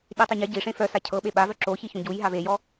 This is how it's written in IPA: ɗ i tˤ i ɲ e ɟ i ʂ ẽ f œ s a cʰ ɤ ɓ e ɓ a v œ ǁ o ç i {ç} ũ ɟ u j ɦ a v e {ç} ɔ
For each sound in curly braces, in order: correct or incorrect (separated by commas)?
correct, incorrect